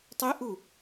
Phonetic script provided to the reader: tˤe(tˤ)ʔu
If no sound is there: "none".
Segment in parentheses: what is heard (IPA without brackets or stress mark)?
none